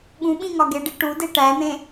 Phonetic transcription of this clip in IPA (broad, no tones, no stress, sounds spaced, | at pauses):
ɠ ũ ɓ ĩ ŋ ɒ ɡ e ɖ i ʈ u d e ʈ æ n̪ ẽ